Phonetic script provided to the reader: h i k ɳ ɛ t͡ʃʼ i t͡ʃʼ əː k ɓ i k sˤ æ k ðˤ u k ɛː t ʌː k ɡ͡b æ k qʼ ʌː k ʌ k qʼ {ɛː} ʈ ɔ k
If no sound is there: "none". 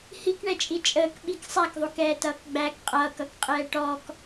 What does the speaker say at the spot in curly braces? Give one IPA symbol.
ɛː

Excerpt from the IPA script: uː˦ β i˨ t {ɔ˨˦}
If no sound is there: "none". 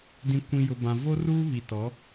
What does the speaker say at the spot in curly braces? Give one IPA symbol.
ɔ˨˦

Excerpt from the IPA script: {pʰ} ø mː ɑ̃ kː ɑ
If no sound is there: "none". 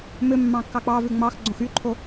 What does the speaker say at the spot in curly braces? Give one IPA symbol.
m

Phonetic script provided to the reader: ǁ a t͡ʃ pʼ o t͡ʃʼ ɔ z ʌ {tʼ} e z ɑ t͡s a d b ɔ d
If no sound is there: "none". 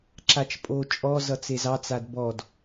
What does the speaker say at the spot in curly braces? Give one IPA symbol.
t͡s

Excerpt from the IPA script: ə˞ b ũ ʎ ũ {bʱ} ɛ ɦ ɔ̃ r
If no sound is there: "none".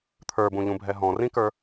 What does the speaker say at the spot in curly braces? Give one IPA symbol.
bʱ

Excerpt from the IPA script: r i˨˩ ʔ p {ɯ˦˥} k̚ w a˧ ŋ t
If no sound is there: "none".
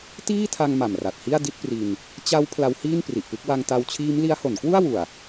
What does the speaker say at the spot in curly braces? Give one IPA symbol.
ɯ˥˩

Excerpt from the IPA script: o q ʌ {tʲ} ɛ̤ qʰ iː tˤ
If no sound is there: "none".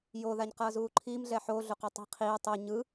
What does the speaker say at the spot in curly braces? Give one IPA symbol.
tˤ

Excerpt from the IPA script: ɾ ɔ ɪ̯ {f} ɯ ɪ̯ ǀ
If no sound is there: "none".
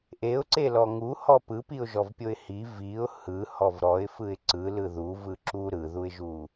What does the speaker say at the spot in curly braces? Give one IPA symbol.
f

